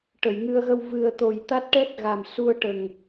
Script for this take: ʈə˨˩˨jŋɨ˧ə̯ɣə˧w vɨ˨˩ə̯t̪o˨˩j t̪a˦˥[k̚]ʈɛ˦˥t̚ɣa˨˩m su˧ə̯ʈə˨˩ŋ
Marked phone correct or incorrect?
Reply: incorrect